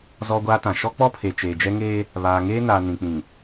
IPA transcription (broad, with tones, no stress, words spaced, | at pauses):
zɔ˦ɡʷaː˦tã˨ ʃɔ˦k͡pɔ˦pʰe˨ t͡ʃeː˨d͡ʒɛ˦ŋeː˦ | βaː˨ŋeː˦naː˨ nĩ˨k͡pĩ˨